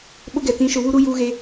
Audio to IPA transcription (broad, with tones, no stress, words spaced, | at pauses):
ɓʊ˦ɡɛ˨ tĩ˨˦ʃʊ˨βu˦ ɾu˦ juː˦ɣe˦